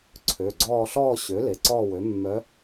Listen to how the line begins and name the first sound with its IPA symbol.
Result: ǀʰ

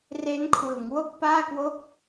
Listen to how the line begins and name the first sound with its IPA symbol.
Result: r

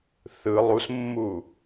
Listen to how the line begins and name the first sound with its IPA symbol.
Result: θ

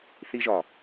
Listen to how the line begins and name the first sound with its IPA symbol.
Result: θ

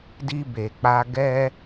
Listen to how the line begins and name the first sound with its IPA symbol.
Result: d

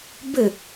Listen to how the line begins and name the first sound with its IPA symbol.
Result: b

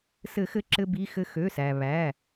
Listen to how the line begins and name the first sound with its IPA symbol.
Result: s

